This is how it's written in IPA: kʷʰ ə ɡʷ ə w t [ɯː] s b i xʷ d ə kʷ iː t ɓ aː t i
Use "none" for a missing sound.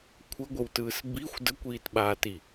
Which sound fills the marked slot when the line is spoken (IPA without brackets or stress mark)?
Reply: ɯː